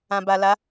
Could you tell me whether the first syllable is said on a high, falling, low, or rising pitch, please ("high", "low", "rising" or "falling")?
low